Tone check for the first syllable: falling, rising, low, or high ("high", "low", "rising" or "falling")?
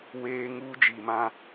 high